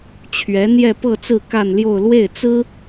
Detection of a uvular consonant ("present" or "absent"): absent